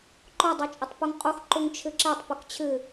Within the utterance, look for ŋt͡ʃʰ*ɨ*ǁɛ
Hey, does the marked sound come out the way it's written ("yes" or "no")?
yes